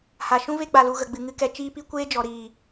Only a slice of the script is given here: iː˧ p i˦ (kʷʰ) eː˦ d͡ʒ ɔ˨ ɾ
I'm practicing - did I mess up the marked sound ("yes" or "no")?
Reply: yes